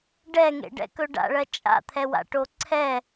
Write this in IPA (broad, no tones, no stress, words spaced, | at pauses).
ɖɛŋḛɖɛ̰kɵ ɖa̰ɭɜ t͡ʃʼa̰t̪ʰɛwa̰ʈo ǀʰɛ